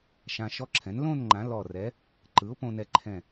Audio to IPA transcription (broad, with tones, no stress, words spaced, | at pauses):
ʃã˧ʃɔ˦˥ǁʰɛ̃˩˥n lõ˥˧n ŋ͡ǃã˩˥lɔ˧˩rɛ˩˥ | ǃɯ˩˥ʊ̯põ˧nɛ˧ǃʰɛ̃˧˩